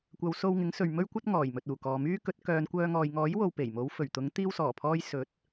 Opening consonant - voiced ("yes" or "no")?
no